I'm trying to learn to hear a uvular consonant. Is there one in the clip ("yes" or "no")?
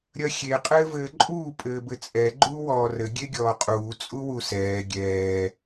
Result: yes